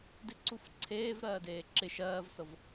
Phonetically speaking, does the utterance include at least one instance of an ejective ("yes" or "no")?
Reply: no